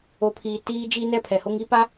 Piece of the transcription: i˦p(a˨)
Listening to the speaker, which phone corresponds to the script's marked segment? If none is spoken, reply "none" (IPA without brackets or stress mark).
a˦